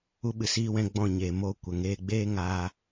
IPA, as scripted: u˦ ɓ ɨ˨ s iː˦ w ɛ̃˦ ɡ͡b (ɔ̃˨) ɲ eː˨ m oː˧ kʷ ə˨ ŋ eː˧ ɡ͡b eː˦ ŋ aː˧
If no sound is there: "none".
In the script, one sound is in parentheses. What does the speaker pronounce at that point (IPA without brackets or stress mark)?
ɔ̃˦˨